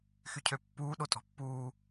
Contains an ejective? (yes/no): yes